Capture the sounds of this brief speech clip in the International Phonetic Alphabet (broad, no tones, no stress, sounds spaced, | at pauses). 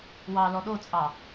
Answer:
w ɑ l ɔ ɗ o t͡sʼ ɑ